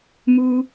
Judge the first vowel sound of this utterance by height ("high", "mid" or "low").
high